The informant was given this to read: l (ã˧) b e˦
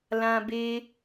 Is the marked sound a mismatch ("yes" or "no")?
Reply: no